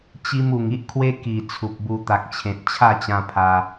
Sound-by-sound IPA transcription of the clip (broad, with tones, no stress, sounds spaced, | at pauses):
t͡ɕ i˧ m u˨˩ ŋ i˦ ʔ kʰ w e˦ k i˨˩ t͡sʰ u˨ p̚ b u˧ t̪ a˨ k̚ t͡ɕʰ ẽ˨ t̚ t͡ɕʰ a˥˧ t͡ɕ ã˧ pʰ a˧